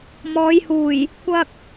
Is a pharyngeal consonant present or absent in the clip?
absent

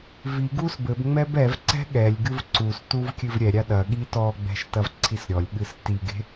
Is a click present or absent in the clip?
present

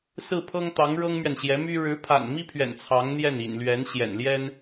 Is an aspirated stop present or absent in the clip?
present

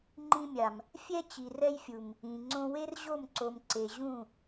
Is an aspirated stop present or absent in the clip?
absent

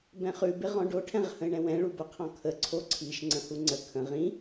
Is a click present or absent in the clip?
present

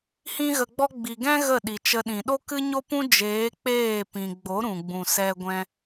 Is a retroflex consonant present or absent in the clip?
absent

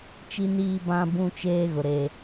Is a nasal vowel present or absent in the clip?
present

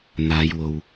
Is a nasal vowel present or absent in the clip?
absent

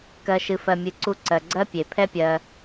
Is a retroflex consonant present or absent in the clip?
absent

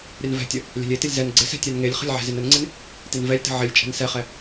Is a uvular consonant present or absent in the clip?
present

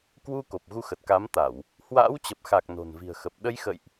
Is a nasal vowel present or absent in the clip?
absent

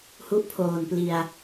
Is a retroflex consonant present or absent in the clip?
absent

